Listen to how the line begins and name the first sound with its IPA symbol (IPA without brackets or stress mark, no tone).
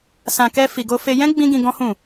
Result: s